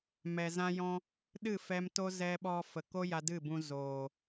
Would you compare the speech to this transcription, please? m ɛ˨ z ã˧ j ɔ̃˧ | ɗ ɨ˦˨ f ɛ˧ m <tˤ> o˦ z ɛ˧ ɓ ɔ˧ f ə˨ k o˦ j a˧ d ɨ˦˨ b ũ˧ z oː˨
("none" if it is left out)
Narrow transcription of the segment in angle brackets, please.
t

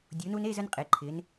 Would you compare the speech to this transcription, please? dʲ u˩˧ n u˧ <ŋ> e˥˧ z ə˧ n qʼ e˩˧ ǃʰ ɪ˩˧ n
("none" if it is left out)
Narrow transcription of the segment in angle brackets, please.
n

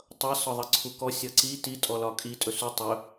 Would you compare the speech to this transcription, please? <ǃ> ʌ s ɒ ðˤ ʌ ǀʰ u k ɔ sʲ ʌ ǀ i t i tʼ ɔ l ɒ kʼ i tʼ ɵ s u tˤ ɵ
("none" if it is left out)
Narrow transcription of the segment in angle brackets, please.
tˤ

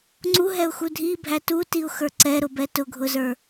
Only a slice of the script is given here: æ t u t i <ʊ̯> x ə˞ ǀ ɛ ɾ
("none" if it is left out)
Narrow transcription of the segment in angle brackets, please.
ʊ̯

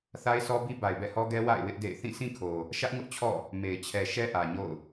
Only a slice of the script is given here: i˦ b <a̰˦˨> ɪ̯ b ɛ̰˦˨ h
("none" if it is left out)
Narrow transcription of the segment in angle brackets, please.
a˨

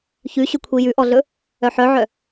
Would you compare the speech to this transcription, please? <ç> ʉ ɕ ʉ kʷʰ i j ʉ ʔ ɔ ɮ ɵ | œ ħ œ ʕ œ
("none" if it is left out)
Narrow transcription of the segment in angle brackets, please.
ç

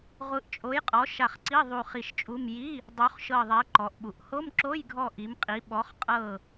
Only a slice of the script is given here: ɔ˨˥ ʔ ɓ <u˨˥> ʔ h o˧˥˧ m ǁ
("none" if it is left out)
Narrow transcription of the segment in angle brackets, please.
u˨˥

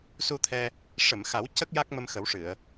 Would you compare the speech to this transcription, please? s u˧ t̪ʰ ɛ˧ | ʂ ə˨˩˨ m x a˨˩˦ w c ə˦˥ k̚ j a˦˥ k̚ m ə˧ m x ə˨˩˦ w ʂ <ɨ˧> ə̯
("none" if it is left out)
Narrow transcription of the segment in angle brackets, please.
ɨ˨˩˨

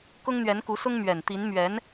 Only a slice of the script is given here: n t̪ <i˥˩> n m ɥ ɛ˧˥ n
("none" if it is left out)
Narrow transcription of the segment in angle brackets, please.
i˧˥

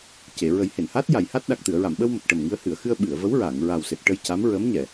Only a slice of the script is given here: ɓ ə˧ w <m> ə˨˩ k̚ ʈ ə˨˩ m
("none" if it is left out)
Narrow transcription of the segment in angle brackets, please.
m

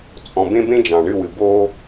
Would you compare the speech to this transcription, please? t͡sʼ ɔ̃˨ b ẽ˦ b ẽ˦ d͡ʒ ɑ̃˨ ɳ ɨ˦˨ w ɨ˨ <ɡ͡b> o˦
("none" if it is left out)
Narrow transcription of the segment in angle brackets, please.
b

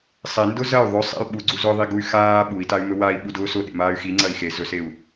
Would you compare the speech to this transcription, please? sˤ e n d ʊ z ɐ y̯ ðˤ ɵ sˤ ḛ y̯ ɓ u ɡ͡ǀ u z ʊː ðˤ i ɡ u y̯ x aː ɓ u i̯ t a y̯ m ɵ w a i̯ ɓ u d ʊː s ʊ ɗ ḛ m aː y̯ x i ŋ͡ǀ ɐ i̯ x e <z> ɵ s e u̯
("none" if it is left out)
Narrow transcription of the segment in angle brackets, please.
z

